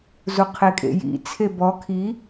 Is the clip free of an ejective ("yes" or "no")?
no